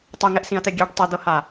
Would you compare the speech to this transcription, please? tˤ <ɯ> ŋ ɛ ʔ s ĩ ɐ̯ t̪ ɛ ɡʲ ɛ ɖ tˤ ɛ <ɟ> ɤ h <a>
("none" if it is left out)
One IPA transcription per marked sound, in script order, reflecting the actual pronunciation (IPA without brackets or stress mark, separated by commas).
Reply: u, d̪, a